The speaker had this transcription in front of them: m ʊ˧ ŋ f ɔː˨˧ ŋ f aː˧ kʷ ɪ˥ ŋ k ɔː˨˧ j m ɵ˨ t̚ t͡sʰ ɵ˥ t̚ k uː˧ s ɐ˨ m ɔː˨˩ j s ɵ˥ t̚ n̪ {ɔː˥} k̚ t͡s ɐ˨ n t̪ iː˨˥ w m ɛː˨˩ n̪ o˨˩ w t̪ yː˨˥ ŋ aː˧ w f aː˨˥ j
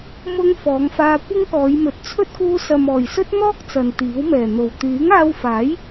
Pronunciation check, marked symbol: correct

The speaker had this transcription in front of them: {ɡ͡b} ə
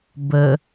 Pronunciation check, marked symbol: incorrect: b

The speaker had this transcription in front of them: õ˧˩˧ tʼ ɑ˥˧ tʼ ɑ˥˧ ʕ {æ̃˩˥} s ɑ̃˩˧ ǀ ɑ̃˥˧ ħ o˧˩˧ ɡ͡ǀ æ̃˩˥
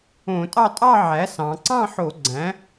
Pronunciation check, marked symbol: incorrect: æ˩˥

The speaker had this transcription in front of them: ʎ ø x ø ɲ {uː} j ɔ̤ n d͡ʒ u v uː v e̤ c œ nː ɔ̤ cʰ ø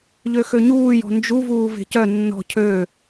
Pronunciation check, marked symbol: correct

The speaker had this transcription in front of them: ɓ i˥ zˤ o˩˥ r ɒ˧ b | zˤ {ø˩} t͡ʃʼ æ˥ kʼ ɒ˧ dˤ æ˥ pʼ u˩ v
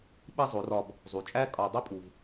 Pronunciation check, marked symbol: incorrect: u˩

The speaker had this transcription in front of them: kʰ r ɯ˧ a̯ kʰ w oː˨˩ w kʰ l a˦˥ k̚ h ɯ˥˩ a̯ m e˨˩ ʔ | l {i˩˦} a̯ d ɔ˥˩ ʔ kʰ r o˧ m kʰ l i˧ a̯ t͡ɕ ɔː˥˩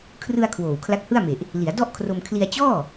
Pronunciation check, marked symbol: correct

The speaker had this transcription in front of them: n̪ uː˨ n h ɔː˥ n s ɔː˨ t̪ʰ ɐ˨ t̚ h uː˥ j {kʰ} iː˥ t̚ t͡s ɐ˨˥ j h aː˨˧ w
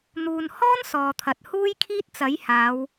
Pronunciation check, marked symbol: correct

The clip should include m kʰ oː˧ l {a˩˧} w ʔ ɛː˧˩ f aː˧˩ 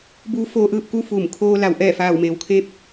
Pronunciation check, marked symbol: correct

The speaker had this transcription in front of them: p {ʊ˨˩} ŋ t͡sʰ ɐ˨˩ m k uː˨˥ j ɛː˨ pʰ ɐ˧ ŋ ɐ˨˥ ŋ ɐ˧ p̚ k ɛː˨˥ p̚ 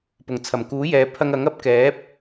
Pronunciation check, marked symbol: correct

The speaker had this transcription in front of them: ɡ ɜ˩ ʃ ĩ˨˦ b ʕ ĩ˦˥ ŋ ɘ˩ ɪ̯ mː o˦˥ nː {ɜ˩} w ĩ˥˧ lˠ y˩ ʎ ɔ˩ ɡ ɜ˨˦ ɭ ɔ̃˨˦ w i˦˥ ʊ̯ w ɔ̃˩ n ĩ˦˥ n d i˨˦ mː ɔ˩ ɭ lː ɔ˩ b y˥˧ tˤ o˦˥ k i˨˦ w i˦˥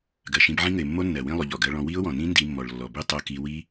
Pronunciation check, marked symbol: correct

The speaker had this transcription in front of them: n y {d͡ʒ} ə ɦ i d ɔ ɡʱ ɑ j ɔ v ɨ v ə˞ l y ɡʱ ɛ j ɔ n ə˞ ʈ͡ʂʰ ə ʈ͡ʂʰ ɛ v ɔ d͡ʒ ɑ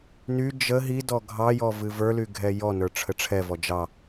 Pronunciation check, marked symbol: correct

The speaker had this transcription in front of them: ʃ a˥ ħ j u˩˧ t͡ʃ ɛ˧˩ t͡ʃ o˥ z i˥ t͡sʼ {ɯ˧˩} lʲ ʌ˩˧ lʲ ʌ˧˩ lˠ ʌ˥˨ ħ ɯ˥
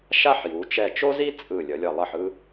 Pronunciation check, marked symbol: correct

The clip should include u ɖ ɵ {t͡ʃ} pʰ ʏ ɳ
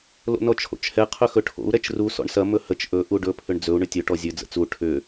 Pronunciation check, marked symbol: incorrect: none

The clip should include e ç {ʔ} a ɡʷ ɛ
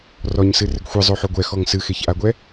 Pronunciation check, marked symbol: correct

